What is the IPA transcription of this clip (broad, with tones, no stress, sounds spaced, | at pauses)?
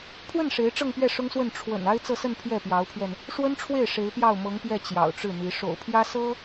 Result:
pʰ w ə˥˩ n ʂ e˧˥ ɪ̯ ʈ͡ʂ ɤ˥˧ ŋ p ɥ ɛ˥˩ ʂ ʊ˥ ŋ s w ə˥˩ n ʈ͡ʂʰ w ə̰˨˩ n a˥ ɪ̯ t͡s ɤ˥˧ s ə˥˧ n pʰ j ɛ˥˩ p j ɑ˧˥ ʊ̯ pʰ ɥ ɛ˧ n | ʂ w ə˥ n ʈ͡ʂʰ w e˥˩ ɪ̯ ʂ e˧˥ ɪ̯ p j ɑ˥˩ ʊ̯ m ɤ˧˥ ŋ p j ɛ˥˩ t͡ɕ j ɑ̰˨˩ ʊ̯ ʈ͡ʂ ɻ̩˥˩ n̪ i˧˥ ʂ o̰˨˩ ʊ̯ pʰ j ä˥ s ɤ˥